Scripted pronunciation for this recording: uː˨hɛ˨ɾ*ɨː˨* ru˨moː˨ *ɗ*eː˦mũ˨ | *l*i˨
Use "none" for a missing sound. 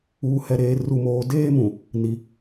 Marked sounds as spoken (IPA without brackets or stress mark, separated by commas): eː˨, d, n